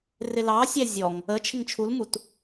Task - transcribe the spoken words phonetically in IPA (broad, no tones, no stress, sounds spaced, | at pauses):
r ɪ l ɑ sʲ æ zʲ ɔ ŋ | ə t͡ʃʰ ɪ ŋ t͡ʃʰ u l m u t